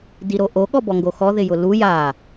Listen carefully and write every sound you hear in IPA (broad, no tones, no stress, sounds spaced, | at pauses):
d i ɾ o ʔ o ɠ ɔ b ɔ ŋ ɡ o x ɔ ð ɪ j ʊ l u j a